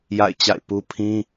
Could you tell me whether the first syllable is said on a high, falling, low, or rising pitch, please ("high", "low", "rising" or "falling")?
falling